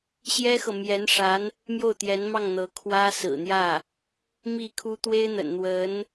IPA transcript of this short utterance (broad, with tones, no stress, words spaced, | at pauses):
ɕjɛ˥xɤ˨ mjɛ˧˥nʂa˧˥n | mjo˥˩ʊ̯t̪jɛ˧˥nmɑ˥˩ŋ n̪ɤ˧˥ kʰwä˥sɹ̩˨˩n̪jä˥˩ | mi˥˩kʰu˥ t̪we˥ɪ̯n̪ə̰˨˩nn̪wə˧˥n